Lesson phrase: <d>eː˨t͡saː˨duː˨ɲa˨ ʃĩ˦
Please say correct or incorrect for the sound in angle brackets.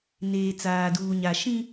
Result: incorrect